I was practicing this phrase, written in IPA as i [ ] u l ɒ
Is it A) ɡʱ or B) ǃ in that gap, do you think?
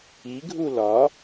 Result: A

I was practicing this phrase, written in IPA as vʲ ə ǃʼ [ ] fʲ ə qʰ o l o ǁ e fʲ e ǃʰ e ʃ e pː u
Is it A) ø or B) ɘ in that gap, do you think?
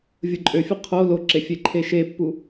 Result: A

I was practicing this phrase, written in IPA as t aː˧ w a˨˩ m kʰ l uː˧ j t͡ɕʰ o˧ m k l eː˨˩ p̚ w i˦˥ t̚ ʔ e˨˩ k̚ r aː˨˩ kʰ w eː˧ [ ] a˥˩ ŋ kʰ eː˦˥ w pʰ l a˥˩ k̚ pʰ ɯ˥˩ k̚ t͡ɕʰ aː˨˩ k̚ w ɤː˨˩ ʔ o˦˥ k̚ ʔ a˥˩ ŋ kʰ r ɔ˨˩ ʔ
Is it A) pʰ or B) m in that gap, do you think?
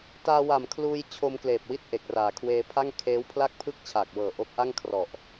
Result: A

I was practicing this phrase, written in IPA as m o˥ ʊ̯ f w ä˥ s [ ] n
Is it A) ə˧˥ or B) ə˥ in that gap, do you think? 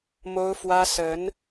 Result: A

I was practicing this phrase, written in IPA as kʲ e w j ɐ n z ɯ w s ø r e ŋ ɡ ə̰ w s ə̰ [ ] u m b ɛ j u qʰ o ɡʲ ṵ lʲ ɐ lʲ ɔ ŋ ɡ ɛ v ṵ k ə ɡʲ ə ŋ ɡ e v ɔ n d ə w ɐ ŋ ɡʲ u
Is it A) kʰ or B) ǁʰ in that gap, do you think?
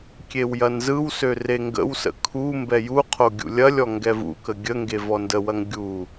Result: A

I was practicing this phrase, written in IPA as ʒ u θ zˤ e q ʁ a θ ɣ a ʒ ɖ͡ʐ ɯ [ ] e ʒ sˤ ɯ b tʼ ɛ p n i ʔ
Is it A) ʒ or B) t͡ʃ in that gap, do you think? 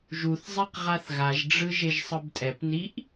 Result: A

